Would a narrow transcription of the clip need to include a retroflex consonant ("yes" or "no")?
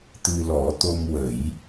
no